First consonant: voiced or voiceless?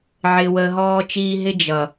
voiced